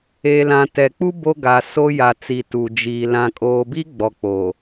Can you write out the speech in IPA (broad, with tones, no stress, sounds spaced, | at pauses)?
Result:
e˨ l ã˨ t ɛ˨ k͡p u˦ b o˦ ɡ a˨ s o˦ j a˨ t͡s i˨ t u˨ d͡ʒ iː˨ l ã˨ kʼ oː˨ b i˦ ɡ͡b ɔ˨ k͡p o˨